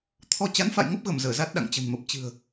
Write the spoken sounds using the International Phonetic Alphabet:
t̪ʰ ɔ˧ t͡ɕ a˨˦ n f a̰˧˨ j ŋ ə˦˥ p̚ ɣ ə˧˩ m z əː˧˩ z a˦˥ t̚ ɗ a̰˧˨ ŋ t͡ɕ ə̤˨˩ n m ə˨˩ p̚ t͡ɕ ɨ̤˨˩ ə̯

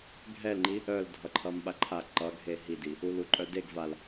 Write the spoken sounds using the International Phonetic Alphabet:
ɡʱ ɛ l ŋ͡ǃ i | œ l dʱ ʌ ǃʰ ʌ m ɓ a ǃʰ a ǃ ʌ ɡʱ e ɦ i d i | u l u ǃʼ œ d e ɡ v a l

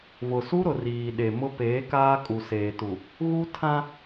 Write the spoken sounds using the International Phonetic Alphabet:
v ʊ˨ s u˦ ɾ ʊ˨ r iː˨ ɗ e˨ m ʊ˦ p eː˨˦ k aː˦ kʼ u˨ s eː˨ t u˨ | ɣ u˦ tʰ ã˦

